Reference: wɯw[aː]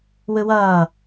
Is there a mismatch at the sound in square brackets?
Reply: yes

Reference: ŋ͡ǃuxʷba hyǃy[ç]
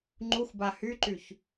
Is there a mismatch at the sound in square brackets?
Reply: no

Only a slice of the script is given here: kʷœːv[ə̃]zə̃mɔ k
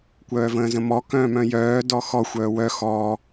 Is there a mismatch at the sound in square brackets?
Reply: yes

